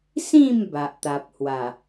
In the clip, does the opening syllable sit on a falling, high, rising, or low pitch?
falling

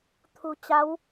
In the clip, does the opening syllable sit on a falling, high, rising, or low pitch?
low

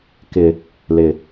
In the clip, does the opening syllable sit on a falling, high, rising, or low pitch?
low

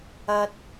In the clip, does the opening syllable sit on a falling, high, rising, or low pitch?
high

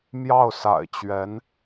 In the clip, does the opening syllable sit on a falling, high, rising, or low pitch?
falling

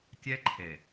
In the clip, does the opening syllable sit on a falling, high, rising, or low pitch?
high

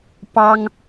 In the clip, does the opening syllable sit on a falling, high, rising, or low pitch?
high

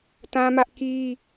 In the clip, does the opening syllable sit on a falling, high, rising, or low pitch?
high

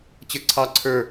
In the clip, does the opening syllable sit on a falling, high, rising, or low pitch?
falling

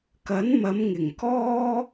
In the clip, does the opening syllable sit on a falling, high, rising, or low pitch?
rising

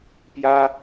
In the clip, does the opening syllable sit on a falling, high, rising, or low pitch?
high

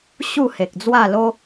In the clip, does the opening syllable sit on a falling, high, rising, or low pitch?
falling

